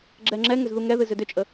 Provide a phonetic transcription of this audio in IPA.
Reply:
ɡ͡ǁ ɛ ŋ͡ǁ ɛ ŋ ʏ z ð u ŋ ɛ ð ɨ z ʏ d ʏ t͡ʃʼ ə

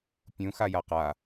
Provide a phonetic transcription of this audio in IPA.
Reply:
pʲ ũ x a j a q a

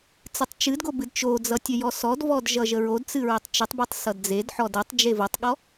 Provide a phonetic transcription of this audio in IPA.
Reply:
t͡s ɨ tˤ t͡ʃ ɨ d ɡ o b ɨ d t͡ʃ o d͡z ʌ tʲ ə j ɔ s ɔ d v ɔ d ʒ ʌ ʒ ə ɹ o d t͡s ɨ ɹ ɘ tˤ t͡ʃ ɘ tˤ b e tˤ s ʌ d d͡z e d ħ ɔ d ə tˤ d͡ʒ e v o tˤ ɠ ɔ

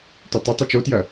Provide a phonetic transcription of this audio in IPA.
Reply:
t ø tˤ ʊ tˤ o t͡ʃ o t j ɐ

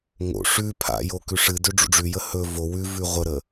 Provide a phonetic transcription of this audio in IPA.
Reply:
ŋ o̰ ʂ ʉ pʰ a̰ j o k ʉ ʂ ɨ d ø ɖ͡ʐ ṵ ɖ͡ʐ ʉ j ə h ɵ v o w ʉ v ʉ ʁʷ ə ɾ ə

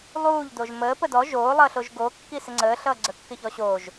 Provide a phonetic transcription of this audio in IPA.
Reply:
lˠ uː ʎ d o ʒ m əː p ə d ɔ ʒ oː lˠ ʌː ɬ o ʒ ɡ o kː i s ɪ ŋ͡ǀ əː ɬ ʌː ɡ͡ǀ ə kː ɪ ç ɔ ɕ oː ʒ

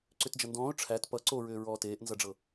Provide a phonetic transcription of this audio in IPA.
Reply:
ǀ ʏ t d͡ʒ ʌ n d ɔ̃ː ʊ̯ ʈ͡ʂʰ æ t p ʌ ǀ o ɹ ʏː ɹ ɔː t eː ʔ n z ʌ ɖ͡ʐ ɤ

